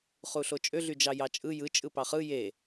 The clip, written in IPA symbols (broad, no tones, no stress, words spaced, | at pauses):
χuɬot͡ʃʼø ɮyd͡ʒɑjɑt͡ʃʼɯ jɯ t͡ʃʼɯpɑχɯ je